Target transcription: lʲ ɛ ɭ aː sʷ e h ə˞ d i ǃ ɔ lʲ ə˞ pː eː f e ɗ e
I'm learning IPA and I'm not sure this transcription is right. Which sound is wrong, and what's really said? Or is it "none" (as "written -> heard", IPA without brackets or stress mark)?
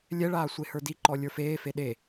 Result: pː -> f